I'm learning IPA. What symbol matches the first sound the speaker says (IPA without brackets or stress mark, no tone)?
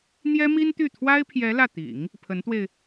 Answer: n̪